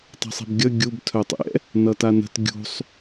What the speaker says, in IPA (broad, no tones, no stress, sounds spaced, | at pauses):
tˤ ɛ̤ sˤ i̤ b ɡʲ ʌ ɡʲ u b tʰ œ tˤ ɛ̰ | n ʌ t a n ə̤ t ɡʲ ṳ sˤ